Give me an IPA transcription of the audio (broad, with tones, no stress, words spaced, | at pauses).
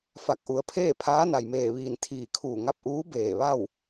fa˧˩k̚ʔu˩ə̯pʰeː˥˨ pʰaː˧˥na˩jmeː˧˩ʋiː˧˩n t̪ʰiː˧˩kʰuː˧˩ŋa˥˨p̚ʔuː˧˥ beː˧˩ ʋa˥˨w